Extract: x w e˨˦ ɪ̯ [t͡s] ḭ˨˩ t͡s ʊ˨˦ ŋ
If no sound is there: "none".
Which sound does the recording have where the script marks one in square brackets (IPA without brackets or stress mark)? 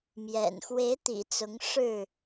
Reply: t̪